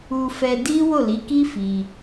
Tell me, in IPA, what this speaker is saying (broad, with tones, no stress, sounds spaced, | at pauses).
u˧ f ɛ˧ d i˦ w o˦˨ l i˨˦ k i˦ f i˧